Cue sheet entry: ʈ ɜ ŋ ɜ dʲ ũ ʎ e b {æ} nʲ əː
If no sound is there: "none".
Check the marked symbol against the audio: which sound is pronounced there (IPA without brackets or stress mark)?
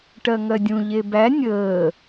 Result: æ